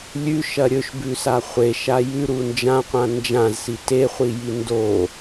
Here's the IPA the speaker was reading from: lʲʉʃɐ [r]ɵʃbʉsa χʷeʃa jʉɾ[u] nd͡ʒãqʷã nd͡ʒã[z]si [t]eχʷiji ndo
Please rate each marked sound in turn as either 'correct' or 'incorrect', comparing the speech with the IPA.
incorrect, correct, correct, correct

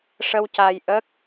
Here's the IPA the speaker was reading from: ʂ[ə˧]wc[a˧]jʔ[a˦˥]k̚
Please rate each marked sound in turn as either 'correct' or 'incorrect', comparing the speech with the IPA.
correct, correct, incorrect

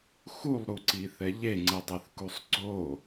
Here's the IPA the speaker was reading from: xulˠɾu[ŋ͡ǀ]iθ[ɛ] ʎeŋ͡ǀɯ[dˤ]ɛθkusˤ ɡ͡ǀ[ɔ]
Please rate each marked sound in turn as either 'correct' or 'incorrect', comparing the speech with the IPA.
incorrect, correct, correct, incorrect

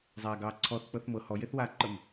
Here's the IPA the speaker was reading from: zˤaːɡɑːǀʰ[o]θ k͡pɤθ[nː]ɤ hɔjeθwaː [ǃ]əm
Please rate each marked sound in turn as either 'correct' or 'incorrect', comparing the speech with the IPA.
incorrect, incorrect, correct

